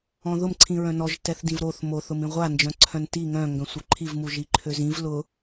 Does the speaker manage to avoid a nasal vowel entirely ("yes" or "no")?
no